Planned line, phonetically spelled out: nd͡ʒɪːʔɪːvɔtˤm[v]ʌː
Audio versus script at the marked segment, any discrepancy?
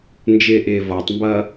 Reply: yes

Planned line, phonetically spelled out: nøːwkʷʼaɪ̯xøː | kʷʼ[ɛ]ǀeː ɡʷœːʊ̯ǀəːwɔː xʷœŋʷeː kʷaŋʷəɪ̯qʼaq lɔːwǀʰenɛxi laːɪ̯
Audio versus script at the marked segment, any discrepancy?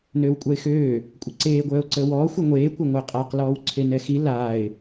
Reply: yes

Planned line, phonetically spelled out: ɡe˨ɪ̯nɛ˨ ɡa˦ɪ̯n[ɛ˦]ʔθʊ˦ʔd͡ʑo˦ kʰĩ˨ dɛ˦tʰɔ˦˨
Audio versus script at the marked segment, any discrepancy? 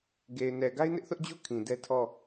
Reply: yes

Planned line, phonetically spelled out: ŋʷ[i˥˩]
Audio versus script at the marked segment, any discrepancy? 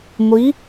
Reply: yes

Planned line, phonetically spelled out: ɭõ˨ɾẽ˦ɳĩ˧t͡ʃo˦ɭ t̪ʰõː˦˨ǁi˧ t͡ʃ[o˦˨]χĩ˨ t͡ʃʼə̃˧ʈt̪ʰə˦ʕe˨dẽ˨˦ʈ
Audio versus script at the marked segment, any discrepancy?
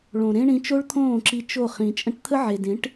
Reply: no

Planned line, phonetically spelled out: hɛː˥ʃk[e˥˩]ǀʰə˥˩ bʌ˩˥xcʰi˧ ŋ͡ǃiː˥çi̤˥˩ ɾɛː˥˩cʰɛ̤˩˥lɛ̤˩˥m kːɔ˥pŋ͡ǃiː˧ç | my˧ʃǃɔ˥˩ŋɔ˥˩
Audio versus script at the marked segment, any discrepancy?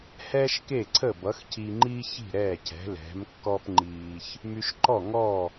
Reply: no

